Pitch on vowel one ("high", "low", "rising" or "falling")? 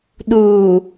low